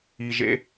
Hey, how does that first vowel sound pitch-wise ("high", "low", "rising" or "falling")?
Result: low